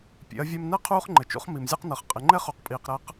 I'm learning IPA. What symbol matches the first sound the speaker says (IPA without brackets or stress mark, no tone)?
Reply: pʲ